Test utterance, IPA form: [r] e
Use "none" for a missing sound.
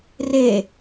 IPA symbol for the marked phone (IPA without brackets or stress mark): r